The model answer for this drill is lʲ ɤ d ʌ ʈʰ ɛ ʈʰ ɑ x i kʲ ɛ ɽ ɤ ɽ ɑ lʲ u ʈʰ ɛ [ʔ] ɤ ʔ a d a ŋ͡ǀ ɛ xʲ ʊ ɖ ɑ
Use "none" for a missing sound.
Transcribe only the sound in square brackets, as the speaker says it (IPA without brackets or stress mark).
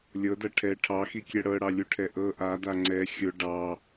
ʔ